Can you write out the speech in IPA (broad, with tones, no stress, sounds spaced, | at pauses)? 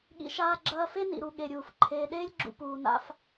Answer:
ɠ ḭ˨ ʃ aː˦ ɡ͡ǁ ɐː˦ f e˥ n ḭ˩ ɾ u˨ ɠ e˩ ɾʲ uː˩ f ǃʰ eː˨ ɗ eː˥ lʲ ɡ͡ǁ ṵ˨ p uː˩ n a̰˦ f